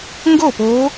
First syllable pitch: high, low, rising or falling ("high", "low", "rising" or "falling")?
falling